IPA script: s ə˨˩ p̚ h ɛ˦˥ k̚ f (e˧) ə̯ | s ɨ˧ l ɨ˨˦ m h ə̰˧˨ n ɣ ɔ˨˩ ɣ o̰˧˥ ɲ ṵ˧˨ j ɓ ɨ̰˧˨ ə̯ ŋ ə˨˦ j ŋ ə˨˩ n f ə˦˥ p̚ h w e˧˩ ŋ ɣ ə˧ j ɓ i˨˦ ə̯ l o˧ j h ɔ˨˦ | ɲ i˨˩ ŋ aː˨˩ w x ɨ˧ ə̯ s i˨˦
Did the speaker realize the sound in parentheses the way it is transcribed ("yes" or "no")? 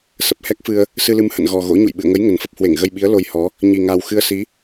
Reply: no